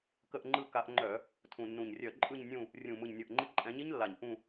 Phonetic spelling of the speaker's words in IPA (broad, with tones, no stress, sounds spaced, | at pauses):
k ə˦˨ ʔ ŋ͡ǃ ɯ˦˨ k a˨˦ ʔ ŋ͡ǃ œ˧˩˧ | tʰ ũ˨˩ nː ũ˨˩ ɲ rʲ œ˧˩˧ ǃʼ ɯ˦˨ ɲ nʲ ũ˦˨ | rʲ ũ˨˩ m ɯ˨˩ ɲ nʲ ɤ˨˩ ʔ ŋ͡ǃ i˨˦ ǃʼ ɛ̃˨˦ ɲ i˦˥ ɲ lː a˨˩ ɲ ʔ ũ˦˨